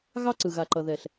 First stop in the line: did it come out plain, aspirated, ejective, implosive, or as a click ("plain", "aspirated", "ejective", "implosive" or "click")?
click